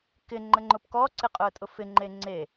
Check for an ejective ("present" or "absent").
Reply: present